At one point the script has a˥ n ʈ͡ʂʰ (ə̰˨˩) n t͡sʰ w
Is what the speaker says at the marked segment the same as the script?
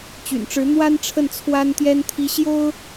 no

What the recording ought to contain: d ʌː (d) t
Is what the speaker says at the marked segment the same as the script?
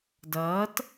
no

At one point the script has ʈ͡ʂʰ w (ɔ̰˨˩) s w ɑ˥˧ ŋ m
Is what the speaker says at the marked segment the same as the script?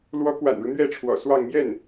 yes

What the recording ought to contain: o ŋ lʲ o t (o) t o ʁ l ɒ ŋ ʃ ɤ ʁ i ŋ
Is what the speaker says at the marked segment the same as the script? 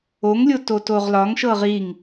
yes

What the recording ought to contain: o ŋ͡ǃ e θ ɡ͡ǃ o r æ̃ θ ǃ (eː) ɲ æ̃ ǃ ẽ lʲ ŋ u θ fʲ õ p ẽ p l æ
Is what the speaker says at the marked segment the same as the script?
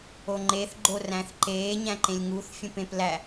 yes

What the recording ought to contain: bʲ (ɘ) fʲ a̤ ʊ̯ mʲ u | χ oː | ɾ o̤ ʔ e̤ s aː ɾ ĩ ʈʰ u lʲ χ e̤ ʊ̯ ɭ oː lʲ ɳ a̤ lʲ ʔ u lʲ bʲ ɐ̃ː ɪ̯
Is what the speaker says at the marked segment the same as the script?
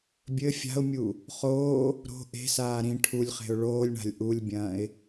yes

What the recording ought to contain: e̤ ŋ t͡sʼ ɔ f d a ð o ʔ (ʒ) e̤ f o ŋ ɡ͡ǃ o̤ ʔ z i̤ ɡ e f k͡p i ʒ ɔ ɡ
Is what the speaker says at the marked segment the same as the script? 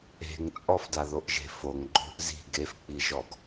yes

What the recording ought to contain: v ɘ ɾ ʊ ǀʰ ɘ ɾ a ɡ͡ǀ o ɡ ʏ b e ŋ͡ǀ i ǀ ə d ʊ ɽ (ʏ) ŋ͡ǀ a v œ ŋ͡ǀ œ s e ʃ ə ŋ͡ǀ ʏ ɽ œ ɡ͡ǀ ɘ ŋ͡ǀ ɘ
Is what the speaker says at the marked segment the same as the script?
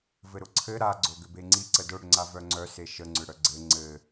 yes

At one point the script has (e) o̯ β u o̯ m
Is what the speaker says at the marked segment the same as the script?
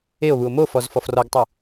yes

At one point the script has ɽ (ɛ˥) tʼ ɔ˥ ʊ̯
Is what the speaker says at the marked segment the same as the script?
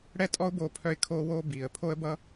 yes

